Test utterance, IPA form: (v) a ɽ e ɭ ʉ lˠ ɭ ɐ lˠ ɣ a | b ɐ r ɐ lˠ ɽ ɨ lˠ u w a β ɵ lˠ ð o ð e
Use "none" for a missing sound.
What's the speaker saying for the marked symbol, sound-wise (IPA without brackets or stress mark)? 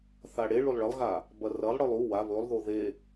θ